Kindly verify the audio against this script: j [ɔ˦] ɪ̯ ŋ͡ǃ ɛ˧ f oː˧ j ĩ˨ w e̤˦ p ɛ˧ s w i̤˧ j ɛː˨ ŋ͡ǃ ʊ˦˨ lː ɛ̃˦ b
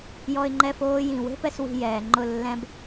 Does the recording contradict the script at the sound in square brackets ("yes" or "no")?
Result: yes